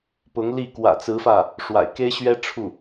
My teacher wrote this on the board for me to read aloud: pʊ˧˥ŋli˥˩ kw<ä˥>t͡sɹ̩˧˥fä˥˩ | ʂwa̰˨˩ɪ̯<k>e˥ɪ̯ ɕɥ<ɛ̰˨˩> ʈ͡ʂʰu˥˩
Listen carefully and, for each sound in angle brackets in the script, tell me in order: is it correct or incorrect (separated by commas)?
incorrect, correct, incorrect